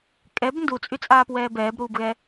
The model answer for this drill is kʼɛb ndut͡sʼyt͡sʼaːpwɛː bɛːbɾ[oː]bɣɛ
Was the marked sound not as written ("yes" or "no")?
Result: yes